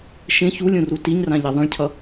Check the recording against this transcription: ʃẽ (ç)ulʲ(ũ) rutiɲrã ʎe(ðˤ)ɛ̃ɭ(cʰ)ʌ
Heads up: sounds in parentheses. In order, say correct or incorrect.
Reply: correct, correct, correct, correct

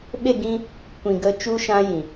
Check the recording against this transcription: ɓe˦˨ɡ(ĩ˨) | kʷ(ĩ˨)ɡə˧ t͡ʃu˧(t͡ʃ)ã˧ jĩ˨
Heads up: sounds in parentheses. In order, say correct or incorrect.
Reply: incorrect: ĩ˦, correct, incorrect: ʃ

